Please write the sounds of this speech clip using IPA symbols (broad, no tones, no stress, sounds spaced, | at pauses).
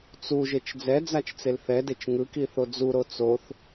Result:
t͡s u ʒ e t͡ʃ d͡z ɛ d͡z a t͡ʃ t͡s e l θ ɛ d e t͡ʃ ŋ ɯ k i θ o d͡z u ɾ o t͡s o θ